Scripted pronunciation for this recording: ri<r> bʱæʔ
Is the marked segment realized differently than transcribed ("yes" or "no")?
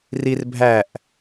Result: no